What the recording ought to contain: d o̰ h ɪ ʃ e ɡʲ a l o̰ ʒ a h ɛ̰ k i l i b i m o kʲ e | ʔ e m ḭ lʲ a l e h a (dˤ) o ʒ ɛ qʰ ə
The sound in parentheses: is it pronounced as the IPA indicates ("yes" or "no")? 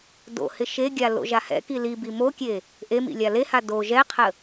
no